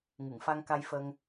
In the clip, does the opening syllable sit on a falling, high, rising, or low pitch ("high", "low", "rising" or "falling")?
low